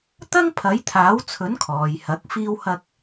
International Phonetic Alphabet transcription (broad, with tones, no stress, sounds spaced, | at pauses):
t̪ ɐ˥ ŋ pʰ ɐ˨˥ j t̪ʰ aː˨˥ w t͡sʰ ɵ˨˥ n kʰ ɔː˨ j h ɐ˨˥ k̚ f iː˥ w h ɐ˥ k̚